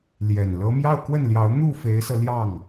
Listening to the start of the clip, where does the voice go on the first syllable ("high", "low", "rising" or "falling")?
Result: low